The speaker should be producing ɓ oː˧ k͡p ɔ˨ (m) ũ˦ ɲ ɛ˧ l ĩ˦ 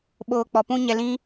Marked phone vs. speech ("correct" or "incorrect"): incorrect